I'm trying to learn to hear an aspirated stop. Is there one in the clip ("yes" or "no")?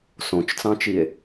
no